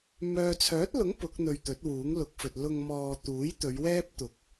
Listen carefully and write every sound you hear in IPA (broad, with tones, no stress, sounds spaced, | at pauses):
m œː˨ t͡sʰ œː˨˥ t̚ l ʊ˨˥ ŋ p ʊ˨˥ k̚ n̪ ɵ˧ ɥ t̪ ɵ˨˥ t̚ w uː˨˥ ŋ l ʊ˨˥ k̚ f ɵ˨ t̚ l ʊ˧ ŋ m ɔː˧ t̪ uː˨˥ j t̪ ɵ˨˧ ɥ w ɛː˥ p̚ t̪ ʊ˨˥ k̚